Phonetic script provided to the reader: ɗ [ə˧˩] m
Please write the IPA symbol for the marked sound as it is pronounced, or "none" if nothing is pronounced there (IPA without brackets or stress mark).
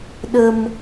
ə˧